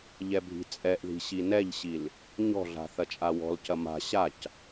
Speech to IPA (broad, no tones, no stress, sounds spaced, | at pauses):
ʎ ɛ bʱ i̤ t͡sʼ ɛ ʔ ð i̤ ɕ i n ɛ ʎ ɕ i l | ɲ ɔ̤ ɮ a̤ θ ɐ t͡ʃʼ a w ɔ̤ l c ɐ m a̤ ɕ a c